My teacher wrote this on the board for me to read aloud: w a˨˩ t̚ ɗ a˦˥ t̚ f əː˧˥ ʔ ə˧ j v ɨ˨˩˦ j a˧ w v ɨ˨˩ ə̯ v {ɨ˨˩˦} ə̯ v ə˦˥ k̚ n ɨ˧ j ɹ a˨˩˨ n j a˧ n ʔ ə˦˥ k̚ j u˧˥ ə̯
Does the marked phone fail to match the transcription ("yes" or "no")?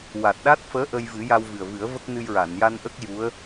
no